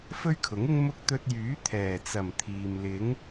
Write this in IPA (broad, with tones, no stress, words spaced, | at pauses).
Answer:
fɵ˥ɥkʰʊ˨˥ŋɪ˥ŋ mʊ˥k̚ t̪ɵ˧t̚jyː˨˥ t̪ʰɛː˨˩t͡sɐ˨˩m t̪ʰiː˨m lɪ˨˥ŋ